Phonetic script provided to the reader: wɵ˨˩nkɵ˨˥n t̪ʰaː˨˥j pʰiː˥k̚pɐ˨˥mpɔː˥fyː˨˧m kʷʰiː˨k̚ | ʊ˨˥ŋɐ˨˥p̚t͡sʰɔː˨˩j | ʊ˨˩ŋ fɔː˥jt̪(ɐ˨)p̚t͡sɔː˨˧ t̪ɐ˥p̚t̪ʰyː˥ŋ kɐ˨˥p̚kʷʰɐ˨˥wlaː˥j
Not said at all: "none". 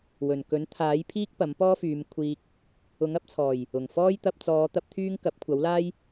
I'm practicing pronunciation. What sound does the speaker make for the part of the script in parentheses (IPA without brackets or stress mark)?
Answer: ɐ˧